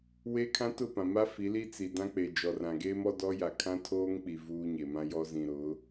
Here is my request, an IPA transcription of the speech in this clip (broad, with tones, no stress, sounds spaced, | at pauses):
w e˦ kʰ ã˦ t ʊ˦˨ p ã˨ m a˦ f i˨˦ l i˦ t͡s i˨ d ã˦ k͡p e˨ d͡ʒ ɔ˨ r ã˨ ɡ eː˦ m ɔ˦ d ɔ˦ j a˨ kʰ ã˦ tʰ oː˦ ŋ k͡p i˨ v uː˦ ɲ e˨ m ã˦ j ɔ˦ z ĩ˨ ɾ ʊ˨˦